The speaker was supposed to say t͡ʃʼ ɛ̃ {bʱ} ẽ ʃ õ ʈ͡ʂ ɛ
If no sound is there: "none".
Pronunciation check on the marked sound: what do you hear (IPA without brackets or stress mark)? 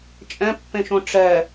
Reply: pː